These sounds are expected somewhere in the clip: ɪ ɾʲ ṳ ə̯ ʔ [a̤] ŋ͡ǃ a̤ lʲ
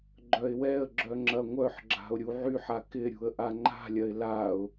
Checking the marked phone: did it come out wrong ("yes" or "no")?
yes